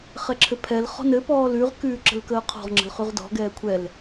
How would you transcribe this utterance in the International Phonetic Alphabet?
χ ɛ ǁʰ ɘ pʰ ɛ l χ ɔ̤ n ɘ p ɔː l ʉ ʁ k ʉː ǁ ə̤ l k əː qʰ ɔ̤ ʁ ŋ͡ǁ ə̤ l χ ʉ ʁ d ɔ̤ ɡ ɛː kʷʰ ɛ l

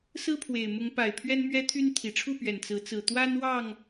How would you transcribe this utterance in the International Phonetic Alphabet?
s ɹ̩˦ pʰ w e˨˩ ɪ̯ m ʊ˨˦ ŋ p a˨˩ ɪ̯ pʰ ɥ ɛ˦ n m ɥ ɛ˦ t̪ʰ y˦ n t̪ʰ i˨˩ ʈ͡ʂʰ u˥˨ p ɥ ɛ˨˩ n t͡s ɹ̩˨˦ t͡s ɹ̩˨˩ t̪ w a˦ n w ɑ˥˨ ŋ

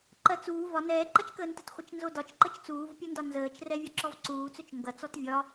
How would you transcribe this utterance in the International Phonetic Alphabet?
ǃ ɜ t͡s uː v ɒ n ɛː ǃ ɐ t͡ʃ k əː n t ə t χʷ ə t͡ʃ n z o d ɒ t͡ʃ ǃ ə t͡ʃ t͡s uː v pʲ o n d ɒ n z əː t͡ʃ r ɛ vʲ ɒ ǁ ɔ v ǀ uː t͡s ɵ t͡ʃ ŋ ɡ ɐ t͡s ɔ t vʲ ɒ

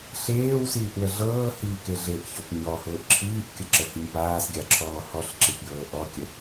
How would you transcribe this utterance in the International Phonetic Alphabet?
ɬ eː w s iː ʔ w ə ɮ ɤː h iː k e ɮ e ʔ ç ɔ p ɲ ɔ h ʊː ʔ ǁʰ iː ʔ kʲ ə ǁ ə h i ɲ p aː s ɡʲ a ǁʰ ɔː h ɔ ɬ ǁ i p j ɤː ʔ ɔ kʲ ə

